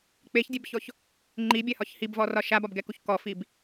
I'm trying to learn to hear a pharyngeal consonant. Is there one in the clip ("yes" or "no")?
no